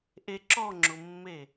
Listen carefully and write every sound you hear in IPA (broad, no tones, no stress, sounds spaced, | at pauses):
ʔ e ǁ ɔ ŋ͡ǁ ʊ mː e